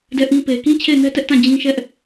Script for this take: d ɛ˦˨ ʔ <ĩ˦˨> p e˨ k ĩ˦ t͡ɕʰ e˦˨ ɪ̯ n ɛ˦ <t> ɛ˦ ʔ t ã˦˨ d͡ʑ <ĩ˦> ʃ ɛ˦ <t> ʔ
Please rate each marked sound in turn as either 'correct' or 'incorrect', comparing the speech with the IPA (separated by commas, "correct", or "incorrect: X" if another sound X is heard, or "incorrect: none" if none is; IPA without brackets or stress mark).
incorrect: ĩ˦, correct, correct, incorrect: none